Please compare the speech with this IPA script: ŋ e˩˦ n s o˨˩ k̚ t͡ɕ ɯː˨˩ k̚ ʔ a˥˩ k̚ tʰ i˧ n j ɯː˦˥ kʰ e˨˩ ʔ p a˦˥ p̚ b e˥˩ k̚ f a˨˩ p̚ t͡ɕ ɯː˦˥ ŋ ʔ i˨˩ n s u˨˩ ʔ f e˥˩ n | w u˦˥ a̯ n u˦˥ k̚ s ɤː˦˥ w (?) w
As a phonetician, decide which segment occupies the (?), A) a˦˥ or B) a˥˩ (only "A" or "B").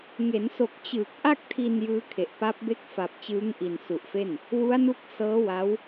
A